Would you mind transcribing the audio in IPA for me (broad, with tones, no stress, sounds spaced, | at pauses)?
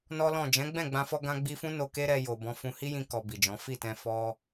n ɔ˦ l ɔ̃˦˨ d͡ʒ ɛ̃˨˦ ɡ͡b ɛ̃˦˨ ɡ͡b ã˧ f ɔ˧ ɡ ã˧ ɡ͡b i˧ f ũ˦ n o˧ k e˦ ɾ ɛ˧ j o˨ b ɔ̃˨˦ f ũ˧ h i˦ j ĩ˧ k ɔ˧ b i˨ d͡ʒ ɔ̃˨˦ f i˦˨ t ɛ̃˧ f ɔ˧